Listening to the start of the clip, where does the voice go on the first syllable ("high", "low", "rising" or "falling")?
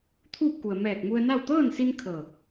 falling